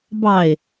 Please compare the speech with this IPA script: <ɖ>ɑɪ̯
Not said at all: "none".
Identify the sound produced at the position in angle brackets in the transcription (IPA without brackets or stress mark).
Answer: b